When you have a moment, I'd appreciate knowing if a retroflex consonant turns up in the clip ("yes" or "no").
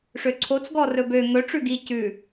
yes